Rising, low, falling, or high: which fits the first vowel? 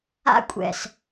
high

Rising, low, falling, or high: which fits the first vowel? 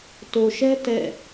low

